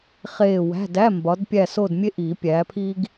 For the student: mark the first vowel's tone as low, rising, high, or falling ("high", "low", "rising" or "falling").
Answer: falling